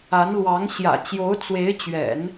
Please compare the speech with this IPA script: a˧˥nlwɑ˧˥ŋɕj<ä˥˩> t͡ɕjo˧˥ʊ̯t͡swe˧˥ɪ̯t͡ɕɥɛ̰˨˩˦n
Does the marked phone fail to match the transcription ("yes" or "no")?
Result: yes